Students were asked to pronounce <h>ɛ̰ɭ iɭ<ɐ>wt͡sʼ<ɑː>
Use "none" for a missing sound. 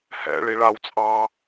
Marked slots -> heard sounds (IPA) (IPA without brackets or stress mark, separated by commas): h, a, ɑː